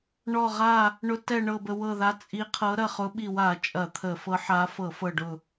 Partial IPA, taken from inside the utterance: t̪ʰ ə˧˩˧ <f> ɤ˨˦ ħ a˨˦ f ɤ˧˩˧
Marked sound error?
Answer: no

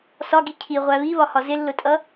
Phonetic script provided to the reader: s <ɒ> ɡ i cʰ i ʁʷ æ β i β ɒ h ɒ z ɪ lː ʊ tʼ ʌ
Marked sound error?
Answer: no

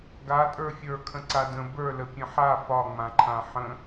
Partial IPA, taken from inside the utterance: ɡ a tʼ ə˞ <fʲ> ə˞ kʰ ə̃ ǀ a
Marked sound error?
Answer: no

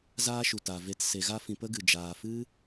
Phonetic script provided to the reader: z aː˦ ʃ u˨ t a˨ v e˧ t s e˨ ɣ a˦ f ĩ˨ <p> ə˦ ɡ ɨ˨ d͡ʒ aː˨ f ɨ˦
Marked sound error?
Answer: no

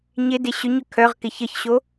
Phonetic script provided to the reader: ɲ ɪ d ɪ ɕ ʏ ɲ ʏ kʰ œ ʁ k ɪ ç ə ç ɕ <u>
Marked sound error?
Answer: yes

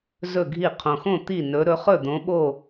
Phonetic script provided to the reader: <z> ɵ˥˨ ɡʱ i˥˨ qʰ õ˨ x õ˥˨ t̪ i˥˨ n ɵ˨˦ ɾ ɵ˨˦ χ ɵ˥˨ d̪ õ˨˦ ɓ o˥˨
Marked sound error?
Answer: no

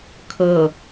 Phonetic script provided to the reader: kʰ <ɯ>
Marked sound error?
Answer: yes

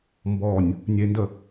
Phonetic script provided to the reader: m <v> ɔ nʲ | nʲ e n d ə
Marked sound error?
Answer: yes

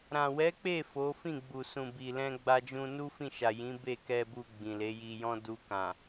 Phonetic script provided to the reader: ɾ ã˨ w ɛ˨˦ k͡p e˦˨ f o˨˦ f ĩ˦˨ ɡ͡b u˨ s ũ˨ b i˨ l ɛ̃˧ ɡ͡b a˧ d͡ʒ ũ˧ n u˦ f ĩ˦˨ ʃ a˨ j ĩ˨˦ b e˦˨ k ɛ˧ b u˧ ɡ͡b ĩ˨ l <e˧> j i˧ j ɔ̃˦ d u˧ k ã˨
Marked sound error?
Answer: yes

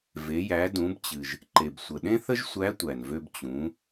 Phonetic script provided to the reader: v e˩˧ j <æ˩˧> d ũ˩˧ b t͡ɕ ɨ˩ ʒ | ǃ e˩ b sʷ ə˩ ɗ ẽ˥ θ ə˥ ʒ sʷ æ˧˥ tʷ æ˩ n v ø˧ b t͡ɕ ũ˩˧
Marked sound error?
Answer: no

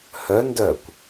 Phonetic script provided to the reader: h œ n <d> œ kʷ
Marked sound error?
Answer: no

